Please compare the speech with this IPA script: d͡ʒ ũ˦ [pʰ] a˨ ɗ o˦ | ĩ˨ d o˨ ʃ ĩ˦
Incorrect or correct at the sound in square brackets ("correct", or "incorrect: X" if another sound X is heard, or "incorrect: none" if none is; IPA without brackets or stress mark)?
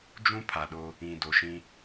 correct